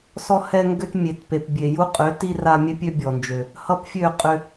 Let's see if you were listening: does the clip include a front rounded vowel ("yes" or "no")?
yes